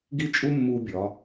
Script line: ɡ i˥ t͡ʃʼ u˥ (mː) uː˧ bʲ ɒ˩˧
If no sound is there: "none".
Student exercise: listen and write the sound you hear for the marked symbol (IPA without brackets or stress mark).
mː